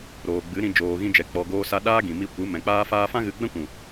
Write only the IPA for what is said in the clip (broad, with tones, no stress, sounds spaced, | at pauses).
ɾ oː˨ ɡ͡b ɨ˨˦ ɾ ĩ˧ d͡ʒ oː˨ ɣ ĩ˧ d͡ʒ ɛ˨ k͡p ɔ˨ ɡ oː˧ s a˧ ɗ aː˦ ɡ ĩ˨ m i˧ kʷ ɨ˨˦ m ɛ̃˨ k͡p aː˦ f aː˦ f ã˦ ɣ ɨ˧ ɡ͡b ɛ̃˦ kʷ ũ˨